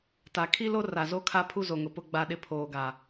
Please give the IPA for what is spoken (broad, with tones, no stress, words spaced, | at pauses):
ta˨ kʰi˦lo˦ ra˨zo˦kʰa˦pʰu˦ zo˨ŋʊ˨pʊ˦ ɡ͡ba˦ɗɪ˦ pʰoː˨ɡa˨